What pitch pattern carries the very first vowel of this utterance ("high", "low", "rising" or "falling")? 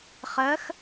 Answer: rising